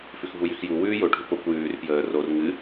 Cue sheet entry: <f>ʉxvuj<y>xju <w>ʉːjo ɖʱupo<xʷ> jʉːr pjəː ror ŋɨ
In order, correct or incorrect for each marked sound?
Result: correct, correct, correct, incorrect: kʷ

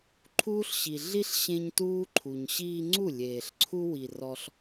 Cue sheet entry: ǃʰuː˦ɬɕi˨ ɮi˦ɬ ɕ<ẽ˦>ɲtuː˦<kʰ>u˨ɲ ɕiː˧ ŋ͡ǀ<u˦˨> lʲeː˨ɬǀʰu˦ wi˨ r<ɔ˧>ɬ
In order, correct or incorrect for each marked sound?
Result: correct, incorrect: ǃʰ, correct, correct

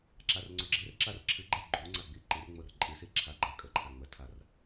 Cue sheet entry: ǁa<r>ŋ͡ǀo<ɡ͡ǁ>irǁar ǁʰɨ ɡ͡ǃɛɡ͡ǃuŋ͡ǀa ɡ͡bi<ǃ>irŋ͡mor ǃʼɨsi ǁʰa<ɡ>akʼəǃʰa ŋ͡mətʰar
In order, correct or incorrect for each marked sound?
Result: correct, correct, correct, incorrect: ɡ͡ǃ

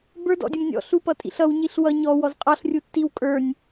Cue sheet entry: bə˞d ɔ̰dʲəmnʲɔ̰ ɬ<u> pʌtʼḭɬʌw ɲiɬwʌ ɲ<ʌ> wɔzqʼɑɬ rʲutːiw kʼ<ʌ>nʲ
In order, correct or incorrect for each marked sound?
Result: correct, incorrect: ɔ, incorrect: ə˞

